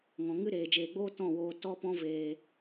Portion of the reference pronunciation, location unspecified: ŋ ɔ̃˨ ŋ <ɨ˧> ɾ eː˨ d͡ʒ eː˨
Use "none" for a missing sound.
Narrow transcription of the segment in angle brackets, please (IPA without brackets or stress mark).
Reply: ɨ˦